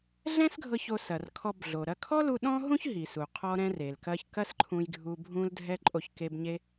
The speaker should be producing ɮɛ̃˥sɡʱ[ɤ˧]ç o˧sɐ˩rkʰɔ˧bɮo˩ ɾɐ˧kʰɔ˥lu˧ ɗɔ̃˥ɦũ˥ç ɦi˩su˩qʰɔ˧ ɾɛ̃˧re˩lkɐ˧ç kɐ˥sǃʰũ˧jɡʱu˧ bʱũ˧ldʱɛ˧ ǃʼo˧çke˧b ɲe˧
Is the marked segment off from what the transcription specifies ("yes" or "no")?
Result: no